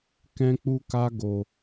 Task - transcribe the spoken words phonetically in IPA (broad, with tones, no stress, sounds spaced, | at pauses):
k ɛ̃˦ k͡p u˦ k a˦ ɡ o˧